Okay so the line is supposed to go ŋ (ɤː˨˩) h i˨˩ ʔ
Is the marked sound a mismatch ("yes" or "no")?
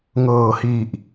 no